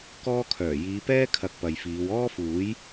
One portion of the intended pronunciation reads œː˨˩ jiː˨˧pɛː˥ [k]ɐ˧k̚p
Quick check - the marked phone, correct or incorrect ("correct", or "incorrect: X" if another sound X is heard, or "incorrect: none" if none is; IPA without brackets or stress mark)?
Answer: incorrect: kʰ